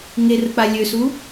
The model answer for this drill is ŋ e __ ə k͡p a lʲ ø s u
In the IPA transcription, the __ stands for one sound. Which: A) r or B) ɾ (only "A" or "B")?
A